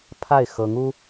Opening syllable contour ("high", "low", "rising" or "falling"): falling